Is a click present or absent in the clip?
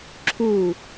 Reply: present